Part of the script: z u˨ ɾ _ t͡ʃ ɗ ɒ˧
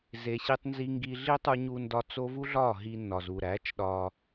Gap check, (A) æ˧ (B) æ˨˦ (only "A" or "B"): B